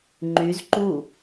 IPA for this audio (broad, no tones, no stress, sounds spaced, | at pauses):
ŋ͡ǃ y z ǃ u